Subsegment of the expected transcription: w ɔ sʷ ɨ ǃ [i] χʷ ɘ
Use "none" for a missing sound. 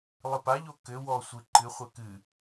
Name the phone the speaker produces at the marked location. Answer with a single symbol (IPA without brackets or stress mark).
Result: ɨ